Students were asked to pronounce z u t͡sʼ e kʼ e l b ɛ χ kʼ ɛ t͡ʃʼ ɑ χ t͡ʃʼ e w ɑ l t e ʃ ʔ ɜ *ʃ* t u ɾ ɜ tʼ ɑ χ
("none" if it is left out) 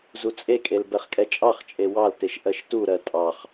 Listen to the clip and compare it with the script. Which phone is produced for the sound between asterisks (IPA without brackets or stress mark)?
ʃ